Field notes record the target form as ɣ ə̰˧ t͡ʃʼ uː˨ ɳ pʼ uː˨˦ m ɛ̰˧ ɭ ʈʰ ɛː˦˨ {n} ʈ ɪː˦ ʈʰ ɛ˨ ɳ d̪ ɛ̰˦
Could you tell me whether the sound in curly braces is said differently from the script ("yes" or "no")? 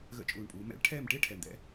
yes